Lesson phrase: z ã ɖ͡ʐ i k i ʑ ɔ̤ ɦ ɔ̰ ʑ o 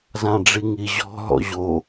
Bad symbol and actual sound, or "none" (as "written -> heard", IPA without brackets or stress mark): k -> ŋ